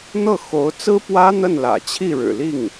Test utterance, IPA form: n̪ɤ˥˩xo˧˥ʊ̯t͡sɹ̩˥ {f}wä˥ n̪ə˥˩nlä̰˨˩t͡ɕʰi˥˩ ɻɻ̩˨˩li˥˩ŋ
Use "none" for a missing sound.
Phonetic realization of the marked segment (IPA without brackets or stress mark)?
p